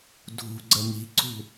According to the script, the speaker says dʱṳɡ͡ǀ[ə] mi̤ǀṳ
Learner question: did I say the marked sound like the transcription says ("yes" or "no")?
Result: yes